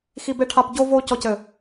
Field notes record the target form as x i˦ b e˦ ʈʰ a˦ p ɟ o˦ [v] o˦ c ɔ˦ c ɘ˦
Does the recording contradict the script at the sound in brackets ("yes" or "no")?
no